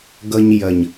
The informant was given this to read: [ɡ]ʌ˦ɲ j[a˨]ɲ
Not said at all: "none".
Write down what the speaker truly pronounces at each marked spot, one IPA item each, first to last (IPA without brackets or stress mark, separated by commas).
ɡ, ɐ˨